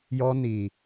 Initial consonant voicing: voiced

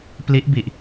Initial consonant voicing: voiceless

